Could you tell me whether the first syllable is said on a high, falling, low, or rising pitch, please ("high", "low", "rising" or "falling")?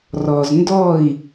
low